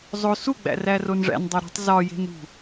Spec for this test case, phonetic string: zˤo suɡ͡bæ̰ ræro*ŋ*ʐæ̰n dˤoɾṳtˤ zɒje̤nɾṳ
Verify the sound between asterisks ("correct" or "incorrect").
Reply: incorrect